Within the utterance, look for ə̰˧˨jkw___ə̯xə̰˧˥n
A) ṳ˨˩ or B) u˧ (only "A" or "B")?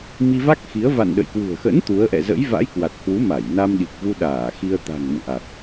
A